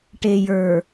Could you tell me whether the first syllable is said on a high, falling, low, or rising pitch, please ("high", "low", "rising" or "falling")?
low